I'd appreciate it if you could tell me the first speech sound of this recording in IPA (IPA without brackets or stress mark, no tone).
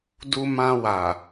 d